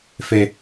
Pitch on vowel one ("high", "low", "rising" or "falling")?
high